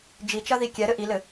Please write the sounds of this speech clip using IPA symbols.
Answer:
d͡ʒ i t͡ʃ ɐ ð i kʲ ɛ ɾ ɘ ʔ i l ɘ

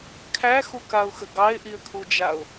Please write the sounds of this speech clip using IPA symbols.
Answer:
kʰ æ x u k a ʊ̯ x ə ɡ ɑ ɪ̯ ʔ i ə̯ kʰ u d͡ʒ a ʊ̯

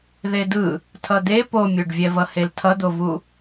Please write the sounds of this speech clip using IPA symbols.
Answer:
ð e d ɯ | tʰ ʌ d̪ e p o mʲ o ɖ vʲ ɛ v ʌ h e l tʰ ʌ d̪ o v u

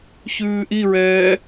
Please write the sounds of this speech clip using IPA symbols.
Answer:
ç ʉː ʔ i ɹ ɛː

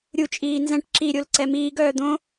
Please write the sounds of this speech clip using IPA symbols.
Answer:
ɾʲ u t͡ʃʼ iː n z ɛ̃ ʈ ǁ i ɾʲ o l ǀ ɛ m iː ɡ œː d̪ õ

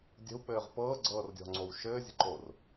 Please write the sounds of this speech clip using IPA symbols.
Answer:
dʲ ə̤ w k͡p ɘː ʁ p ɤː ɡ͡ǀ ɤː r dʲ ɔ̤ ŋ͡ǀ o w ʃ ɘː zʲ ə̤ ǃ o r

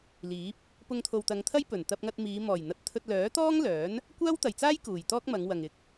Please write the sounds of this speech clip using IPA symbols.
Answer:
l iː˨˥ p̚ | p ʊ˧ ŋ t̪ʰ o˨ w t̪ ɐ˨˧ ŋ t̪ʰ ɐ˥ j p ɵ˨˩ n t̪ ɐ˧ p̚ ŋ ɐ˧ t̚ m iː˨˧ m ɔː˨˩ j n̪ ɐ˨˥ t̚ t̪ʰ ɵ˧ t̚ l œː˨˥ t̪ ɔː˥ ŋ l œː˨˥ n | kʷ aː˥ w t̪ ɐ˨˩ j t͡s aː˥ j k uː˨˩ j t̪ ɔː˥ k̚ m ɐ˨˧ ŋ w ɐ˨ ŋ ɪ˨˥ k̚

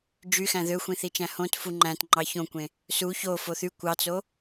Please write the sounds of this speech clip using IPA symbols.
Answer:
d͡ʒ y x æ̃ ð ø xʷ ĩ θ i t͡ʃ æ̃ h õ t f u ŋ͡ǃ æ̃ t ŋ͡ǃ ɑ ç õ kʷ ẽ | s u ç o f o θ y kʷ ɑ t͡s o

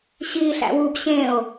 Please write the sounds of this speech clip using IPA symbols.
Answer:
ɕ iː ɬ æ̰ w u b ɕ ẽ o̯

